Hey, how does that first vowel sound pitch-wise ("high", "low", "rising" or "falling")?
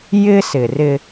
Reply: high